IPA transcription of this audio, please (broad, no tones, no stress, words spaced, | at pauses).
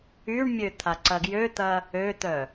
yɳmʲø t̪ʰaǀɐɡjøt̪ɐ | øt̪œ